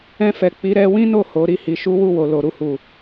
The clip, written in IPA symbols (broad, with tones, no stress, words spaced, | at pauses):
ɛ̃˧fɛ˨ k͡pi˨˦ɾɛ˧ wĩ˦no˦˨ ho˨˦ ɾi˦˨hi˨˦ʃu˦ wu˦˨wo˨lo˨ ɾu˧hu˨